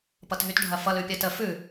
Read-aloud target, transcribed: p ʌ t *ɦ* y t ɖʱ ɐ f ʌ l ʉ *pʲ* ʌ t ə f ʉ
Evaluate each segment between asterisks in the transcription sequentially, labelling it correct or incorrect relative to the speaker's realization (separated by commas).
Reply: correct, correct